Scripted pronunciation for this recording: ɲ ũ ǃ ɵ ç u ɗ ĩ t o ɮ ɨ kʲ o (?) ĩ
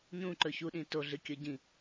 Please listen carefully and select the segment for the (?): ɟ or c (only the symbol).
ɟ